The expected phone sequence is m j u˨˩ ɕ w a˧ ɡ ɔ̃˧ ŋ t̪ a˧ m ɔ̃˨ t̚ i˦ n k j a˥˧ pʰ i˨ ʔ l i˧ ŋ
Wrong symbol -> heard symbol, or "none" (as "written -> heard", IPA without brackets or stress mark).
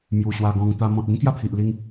none